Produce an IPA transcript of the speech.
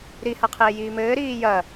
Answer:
ɾ i h a qʰ eː j iː m ɘː ɾ iː j ɐ

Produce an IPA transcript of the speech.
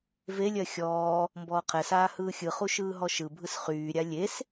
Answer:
v e lʲ ɜ xʲ ɔː | m b ɔː qʰ ɛ s aː h ɯː xʲ ɯ χ u ʃ ɯː ɦ ɔ ʃ ɯ bʱ ɯ s χ yː ɾʲ a lʲ e s

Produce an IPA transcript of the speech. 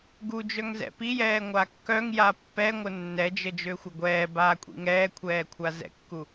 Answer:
ɡ u d͡ʒ œ ŋ z ɛ̰ p i j ɛː ŋʷ a kː œ ŋ j a pː ɛ ŋʷ ə nː ɛ d͡ʒ ə d͡ʒ ø xʷ ə ɡʷ ɛː b aː kʷʼ ḭ ŋ ɛː kʷʰ ɛː kʷʰ a z ɛ̰ kː u

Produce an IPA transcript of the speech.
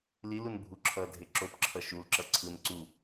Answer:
l i l u n bʱ u ǁʰ ʌ dʱ e ǁ o p ǁʰ ʌ ʃ u l ǁ ʌ ǀʰ ɯ n ǀ u

